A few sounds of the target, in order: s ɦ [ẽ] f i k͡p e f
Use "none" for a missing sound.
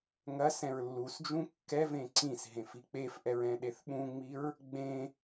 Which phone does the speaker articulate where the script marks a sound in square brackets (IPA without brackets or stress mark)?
ẽ